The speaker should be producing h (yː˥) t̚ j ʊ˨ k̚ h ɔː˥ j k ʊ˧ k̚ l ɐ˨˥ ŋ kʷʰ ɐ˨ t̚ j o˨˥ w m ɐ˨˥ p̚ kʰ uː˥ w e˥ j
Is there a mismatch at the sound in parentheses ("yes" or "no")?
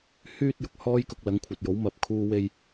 no